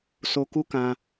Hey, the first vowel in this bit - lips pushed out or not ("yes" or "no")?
yes